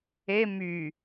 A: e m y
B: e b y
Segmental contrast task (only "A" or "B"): A